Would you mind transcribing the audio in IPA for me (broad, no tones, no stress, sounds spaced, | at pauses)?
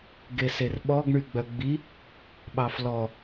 ɡ e s e r ɓ ɔ ɡ ɳ y ɡ͡b œ ɡ͡b i | ɓ ɑ f l ɔ